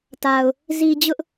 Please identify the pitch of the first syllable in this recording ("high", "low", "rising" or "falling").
low